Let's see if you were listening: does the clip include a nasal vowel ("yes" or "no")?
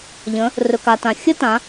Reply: yes